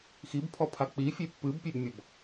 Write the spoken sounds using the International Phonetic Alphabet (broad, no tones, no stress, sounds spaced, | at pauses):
x i b pʰ ɔ pʰ a k͡p i fʲ e pː ɨ b pʲ e b mʲ ɔ b